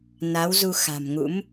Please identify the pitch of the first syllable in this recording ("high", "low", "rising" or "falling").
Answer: rising